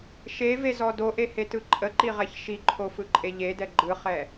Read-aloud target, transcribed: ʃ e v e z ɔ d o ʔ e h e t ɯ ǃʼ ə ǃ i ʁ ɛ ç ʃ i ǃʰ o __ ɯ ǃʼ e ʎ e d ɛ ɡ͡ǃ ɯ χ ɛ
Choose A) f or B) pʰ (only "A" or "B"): A